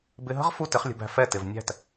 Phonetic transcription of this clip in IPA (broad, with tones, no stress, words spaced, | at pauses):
bɪ˧ɦə̤˥ʁ fu˥tɪ˩˥χlʲə̤˧bæ̤˧ fɛ˥˩tɪ˩v nʲæ̤˥˩t